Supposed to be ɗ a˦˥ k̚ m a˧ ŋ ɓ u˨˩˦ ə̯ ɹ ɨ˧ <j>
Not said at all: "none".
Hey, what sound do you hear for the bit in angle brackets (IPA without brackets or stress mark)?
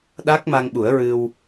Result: w